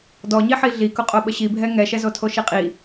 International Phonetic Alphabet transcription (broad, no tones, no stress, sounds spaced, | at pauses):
d ɔ ɲ i ħ i ɮ i k ʊ qʼ o ɓ ə ɕ i bʱ ɛ ŋ ɛ ʃ ɛ z o tʰ o ʃ i qʼ i